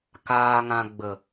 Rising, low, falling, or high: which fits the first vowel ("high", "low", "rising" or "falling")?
low